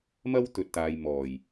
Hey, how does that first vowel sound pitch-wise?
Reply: high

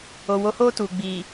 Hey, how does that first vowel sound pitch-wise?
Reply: low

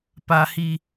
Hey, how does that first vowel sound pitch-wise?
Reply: high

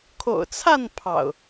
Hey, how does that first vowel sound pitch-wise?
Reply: low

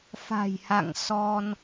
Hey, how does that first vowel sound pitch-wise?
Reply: low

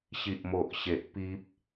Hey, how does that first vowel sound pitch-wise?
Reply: low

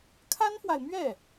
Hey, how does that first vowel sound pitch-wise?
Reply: high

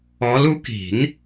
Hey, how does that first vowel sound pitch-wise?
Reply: rising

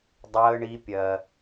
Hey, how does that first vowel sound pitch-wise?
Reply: high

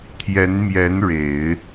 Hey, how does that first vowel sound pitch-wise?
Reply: rising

